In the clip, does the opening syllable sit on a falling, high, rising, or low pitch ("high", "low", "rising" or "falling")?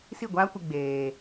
falling